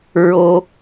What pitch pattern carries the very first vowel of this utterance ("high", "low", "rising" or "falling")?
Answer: high